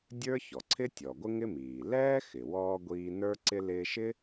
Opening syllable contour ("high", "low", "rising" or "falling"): high